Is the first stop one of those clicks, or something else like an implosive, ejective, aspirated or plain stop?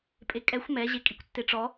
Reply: ejective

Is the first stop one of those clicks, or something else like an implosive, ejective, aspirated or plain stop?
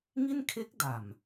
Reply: aspirated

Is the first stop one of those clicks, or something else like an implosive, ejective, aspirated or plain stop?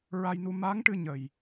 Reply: plain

